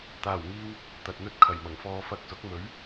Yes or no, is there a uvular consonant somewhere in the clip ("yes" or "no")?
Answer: no